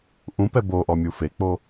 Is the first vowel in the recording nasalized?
yes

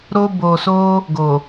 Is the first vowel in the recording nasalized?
no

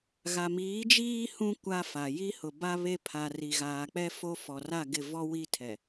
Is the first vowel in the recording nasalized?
no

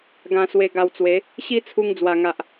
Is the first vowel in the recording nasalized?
yes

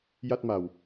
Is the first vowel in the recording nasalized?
no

